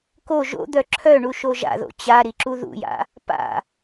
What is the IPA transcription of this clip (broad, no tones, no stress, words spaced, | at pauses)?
ko ʒo̰d̪œ ǁʰœɳuʃo ʒa̰ðo̰ t͡ɕaɾiǁu ðṵja̰ | pa̰